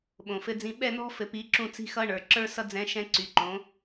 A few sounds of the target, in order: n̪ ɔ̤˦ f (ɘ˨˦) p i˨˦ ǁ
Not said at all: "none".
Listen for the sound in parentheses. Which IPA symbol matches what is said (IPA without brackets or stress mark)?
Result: ɘ˨